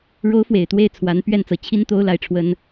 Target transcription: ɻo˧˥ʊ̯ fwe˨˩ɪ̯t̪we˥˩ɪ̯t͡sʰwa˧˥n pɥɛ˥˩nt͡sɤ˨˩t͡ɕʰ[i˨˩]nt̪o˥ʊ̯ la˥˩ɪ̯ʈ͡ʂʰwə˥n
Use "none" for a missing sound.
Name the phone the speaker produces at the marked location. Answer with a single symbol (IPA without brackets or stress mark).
i˥